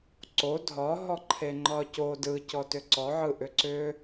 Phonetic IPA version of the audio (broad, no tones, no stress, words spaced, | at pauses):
ǀo dʱɒɦɔ ǃʰeŋ͡ǃɒco dɯ cɔtʏǀɔ ʕɯʔʏǀʏ